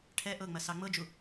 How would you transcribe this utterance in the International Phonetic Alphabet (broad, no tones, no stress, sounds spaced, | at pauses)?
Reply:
ʈʰ ɛ ʔ ɤ ŋ͡m ɐ s ɑ ŋ͡m ɤ d͡ʒ u